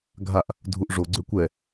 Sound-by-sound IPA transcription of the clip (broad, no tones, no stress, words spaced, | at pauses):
ɡʱaʔ | dʱuʔʐo ɡ͡ǀøkʷɛ